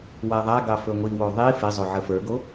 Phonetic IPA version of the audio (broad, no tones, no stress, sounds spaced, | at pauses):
w a ðˤ a ɡ ɑ f ɵ ŋʷ i w o ðˤ i f e zˤ o ʕ ə f ə˞ ɡ o